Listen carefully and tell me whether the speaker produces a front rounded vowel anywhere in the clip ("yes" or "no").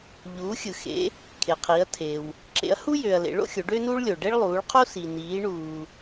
yes